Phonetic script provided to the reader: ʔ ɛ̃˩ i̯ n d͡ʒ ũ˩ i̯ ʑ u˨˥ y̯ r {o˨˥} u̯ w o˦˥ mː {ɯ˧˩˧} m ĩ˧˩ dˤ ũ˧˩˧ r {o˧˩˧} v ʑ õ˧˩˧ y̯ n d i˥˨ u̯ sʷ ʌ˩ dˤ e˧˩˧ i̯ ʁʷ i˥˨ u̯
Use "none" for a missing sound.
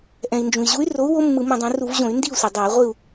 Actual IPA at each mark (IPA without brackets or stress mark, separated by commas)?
o˨˥, ɯ˧˩˧, u˧˩˧